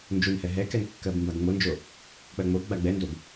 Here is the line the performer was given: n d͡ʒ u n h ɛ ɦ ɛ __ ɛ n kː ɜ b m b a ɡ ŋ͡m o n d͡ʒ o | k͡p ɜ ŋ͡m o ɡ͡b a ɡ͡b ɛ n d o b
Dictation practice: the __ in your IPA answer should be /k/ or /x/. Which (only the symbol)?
k